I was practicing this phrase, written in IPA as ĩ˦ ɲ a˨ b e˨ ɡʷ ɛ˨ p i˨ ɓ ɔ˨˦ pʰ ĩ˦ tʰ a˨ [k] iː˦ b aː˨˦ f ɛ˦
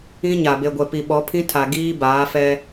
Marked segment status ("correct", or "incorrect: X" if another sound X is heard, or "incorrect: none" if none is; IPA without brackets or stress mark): incorrect: ɡ